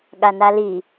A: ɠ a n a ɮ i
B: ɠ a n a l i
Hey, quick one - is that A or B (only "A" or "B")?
B